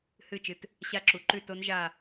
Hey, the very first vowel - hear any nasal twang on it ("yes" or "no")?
no